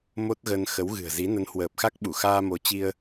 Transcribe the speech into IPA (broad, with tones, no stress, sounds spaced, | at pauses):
m o˦˥ t̚ ɣ ə˧ n x ə˨˦ w ɣ ɨ̤˨˩ ə̯ z i˨˦ n ə˨˦ n h w əː˨˩ p̚ x a˦˥ k̚ ɓ u˧˩ x aː˧ m o˨˦ t͡ɕ i˧ ə̯